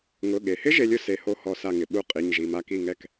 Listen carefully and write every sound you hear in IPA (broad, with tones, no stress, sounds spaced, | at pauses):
ŋ ʊ˩˧˩ ɠ e˩ h ɪ˦˥ ʒ e˦˥ lʲ ʊ˦˥ s e˧˩ h o˦˥ h ɔ˧˩ s a˧˩ ŋ ɪ˩ ɓ u˧˩ qʼ i˩˧˩ ɲ ʒ i˩˧˩ m a˥˩ k i˥˩ ŋ ɛ˥˩ k